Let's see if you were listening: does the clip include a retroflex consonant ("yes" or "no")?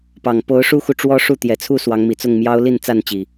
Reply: yes